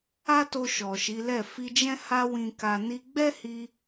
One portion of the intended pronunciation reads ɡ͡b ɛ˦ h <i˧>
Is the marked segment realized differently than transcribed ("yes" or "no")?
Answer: no